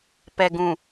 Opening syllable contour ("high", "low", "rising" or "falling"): low